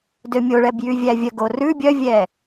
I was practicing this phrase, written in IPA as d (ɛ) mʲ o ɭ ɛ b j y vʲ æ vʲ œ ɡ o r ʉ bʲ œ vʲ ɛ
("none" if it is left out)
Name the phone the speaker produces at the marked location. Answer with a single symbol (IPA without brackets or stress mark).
ø